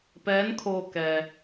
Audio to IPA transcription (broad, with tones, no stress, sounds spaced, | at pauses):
p ɛː˧˥ n kʰ oː˧ k ɛː˩